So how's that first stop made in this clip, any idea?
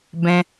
plain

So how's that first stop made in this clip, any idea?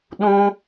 implosive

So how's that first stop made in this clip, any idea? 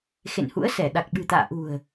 implosive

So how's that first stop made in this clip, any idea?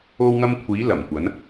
aspirated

